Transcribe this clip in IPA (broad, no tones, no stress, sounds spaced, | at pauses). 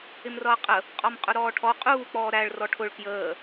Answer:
ɪ m r ʌː qʼ ə | qʼ ɔ m qʼ ʊ ɾ ɔː ʈʰ ɔ qʼ uː k͡p ɔː ɾ æ ɭ r ɔ ʈʰ ʊ ɭ k j əː